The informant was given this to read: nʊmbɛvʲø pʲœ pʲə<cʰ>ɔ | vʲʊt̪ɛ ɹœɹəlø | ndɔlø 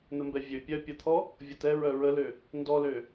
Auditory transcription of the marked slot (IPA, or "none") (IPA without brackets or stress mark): t̪ʰ